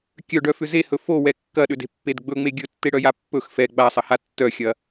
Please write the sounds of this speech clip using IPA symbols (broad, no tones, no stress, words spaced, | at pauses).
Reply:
kʲœɖœfʏ zehɵ fowɛ kːɐɗʏde̤pːed ɡ͡bɵŋ͡me ɡʲɵtːeɽœja pːɵx fɛ ɡ͡basˤɐha tːœxʲɐ